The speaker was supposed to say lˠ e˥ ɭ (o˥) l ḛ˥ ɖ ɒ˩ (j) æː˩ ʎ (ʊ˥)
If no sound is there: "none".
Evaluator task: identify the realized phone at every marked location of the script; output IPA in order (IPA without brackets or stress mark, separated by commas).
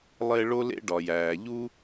o˥, j, u˥